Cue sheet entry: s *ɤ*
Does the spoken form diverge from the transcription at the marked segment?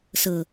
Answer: no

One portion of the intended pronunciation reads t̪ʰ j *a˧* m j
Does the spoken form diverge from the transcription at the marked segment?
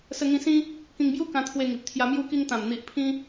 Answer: no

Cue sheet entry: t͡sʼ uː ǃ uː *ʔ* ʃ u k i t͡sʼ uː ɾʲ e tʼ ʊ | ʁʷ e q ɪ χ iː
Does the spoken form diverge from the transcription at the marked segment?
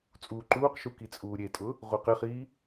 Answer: yes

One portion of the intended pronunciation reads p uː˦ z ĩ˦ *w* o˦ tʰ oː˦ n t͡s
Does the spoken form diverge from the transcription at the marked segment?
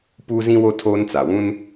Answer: no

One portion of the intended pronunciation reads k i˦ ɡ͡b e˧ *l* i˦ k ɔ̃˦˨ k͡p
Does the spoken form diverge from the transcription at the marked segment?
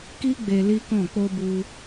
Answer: no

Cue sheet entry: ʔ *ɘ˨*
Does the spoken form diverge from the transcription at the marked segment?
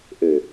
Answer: no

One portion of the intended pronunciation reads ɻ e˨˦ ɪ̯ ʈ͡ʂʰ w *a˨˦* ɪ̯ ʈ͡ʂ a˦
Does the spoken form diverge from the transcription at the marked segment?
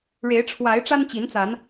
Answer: no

